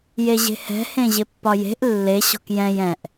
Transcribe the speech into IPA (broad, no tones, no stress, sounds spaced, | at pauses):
j e ʑ e̤ h ɛ̤ h ẽ ʑ ɪ pː ɒ j e̤ ʔ lː e ɕ ɔ̤ k j ɛ̃ j ɛ̃ ʔ